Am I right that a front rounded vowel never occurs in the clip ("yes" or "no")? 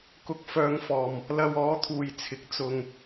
no